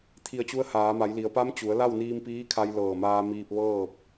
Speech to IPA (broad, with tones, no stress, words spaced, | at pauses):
t̪ʰi˧˩ə̯t͡ɕu˧˥ə̯haː˩˧ma˩˧j li˩˧ə̯pa˧˥m t͡ɕu˩˧ə̯ la˥˨wniː˧mpiː˧˥kʰa˧j lɤː˧˩maː˧ miː˧p̚ʋɤː˥˨p̚